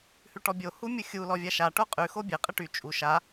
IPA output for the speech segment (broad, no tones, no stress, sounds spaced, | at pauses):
h ʉ ʈ ɔ bʲ o h u mʲ u xʲ u l ɔ vʲ a ʃ a ʈ o qʼ ʉ x o bʲ ɘ qʼ ɘ ʈ y t͡ʃʼ u ʃ a